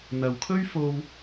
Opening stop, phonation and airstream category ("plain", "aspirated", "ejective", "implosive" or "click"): aspirated